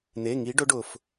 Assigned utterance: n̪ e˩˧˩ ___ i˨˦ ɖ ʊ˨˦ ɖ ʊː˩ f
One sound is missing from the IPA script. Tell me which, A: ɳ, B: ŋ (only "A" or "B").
B